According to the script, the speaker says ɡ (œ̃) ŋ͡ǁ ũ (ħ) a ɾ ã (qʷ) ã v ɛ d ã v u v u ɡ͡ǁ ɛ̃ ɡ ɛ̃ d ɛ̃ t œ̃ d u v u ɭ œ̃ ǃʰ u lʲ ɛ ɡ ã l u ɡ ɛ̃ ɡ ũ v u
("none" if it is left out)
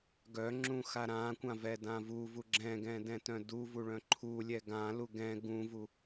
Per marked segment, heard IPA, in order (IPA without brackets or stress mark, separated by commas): œ, x, kʷ